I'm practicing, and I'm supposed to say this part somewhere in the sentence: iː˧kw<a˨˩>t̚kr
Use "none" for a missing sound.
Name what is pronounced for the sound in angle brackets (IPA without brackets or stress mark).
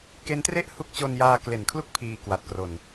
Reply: a˨˩